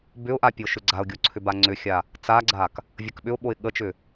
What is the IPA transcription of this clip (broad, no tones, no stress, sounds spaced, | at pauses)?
b ʏ ʊ̯ ʔ a pʲ o ʃ ʏ ɡ͡ǀ a ʊ̯ ɡʲ o ǀʰ ʏ b a ŋ͡ǀ ʏ xʲ a | t͡s a ɡ͡ǀ a k | vʲ ə k ɓ ʏ ʊ̯ ɓ o ɪ̯ ɠ ə t͡ʃ ʏ